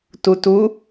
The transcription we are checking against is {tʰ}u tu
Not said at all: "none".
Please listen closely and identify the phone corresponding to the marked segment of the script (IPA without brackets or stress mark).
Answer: t